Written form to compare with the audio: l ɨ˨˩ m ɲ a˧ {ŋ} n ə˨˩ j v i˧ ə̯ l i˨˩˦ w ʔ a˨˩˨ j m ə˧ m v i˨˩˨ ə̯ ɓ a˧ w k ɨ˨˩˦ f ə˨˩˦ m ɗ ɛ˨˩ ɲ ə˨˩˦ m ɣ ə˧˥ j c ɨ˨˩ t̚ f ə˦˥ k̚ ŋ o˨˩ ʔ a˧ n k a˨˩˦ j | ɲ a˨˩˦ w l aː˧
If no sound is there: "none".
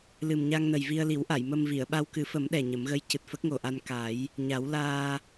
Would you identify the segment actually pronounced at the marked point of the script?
ŋ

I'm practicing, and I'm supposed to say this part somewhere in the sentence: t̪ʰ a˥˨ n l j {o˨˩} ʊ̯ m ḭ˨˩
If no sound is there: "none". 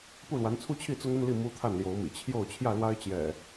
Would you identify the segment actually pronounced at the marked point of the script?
o˨˦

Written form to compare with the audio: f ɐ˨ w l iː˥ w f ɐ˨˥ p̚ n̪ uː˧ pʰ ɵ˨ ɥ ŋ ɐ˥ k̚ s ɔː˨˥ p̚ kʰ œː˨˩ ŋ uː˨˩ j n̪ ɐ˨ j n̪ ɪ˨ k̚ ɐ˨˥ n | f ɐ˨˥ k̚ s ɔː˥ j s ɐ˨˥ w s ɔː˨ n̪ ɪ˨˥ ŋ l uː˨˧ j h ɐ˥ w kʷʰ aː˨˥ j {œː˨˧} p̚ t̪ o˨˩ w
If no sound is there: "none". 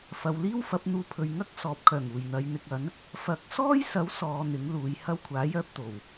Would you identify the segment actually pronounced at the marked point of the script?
œː˥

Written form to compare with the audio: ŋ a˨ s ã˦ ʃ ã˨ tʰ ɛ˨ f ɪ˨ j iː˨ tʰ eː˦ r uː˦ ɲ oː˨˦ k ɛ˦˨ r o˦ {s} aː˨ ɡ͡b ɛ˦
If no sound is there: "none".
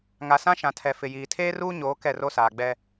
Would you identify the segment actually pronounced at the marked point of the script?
s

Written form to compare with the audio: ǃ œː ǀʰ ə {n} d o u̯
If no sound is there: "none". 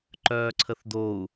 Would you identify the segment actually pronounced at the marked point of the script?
θ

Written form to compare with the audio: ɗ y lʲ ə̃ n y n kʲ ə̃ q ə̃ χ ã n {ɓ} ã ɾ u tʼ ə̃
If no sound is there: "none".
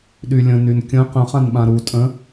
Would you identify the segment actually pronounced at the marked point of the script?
ɓ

